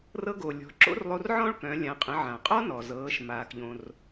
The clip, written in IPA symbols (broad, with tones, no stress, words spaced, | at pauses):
rɤ˧ɡo˩ lʲɔ̤˩˧ ǁo̰˥rlˠo˧rʕɔ̃˥ɭkœ̃˩˧ lʲã˩˧qʼə̃˩˧ ʕã˩qʼɔ˥nɔ˩ zɤː˩˧ʃ maː˩kʎõ˩r